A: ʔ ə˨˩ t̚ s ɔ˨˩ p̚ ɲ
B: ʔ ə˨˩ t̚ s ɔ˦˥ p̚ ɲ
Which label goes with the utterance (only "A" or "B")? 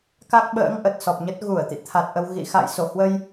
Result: A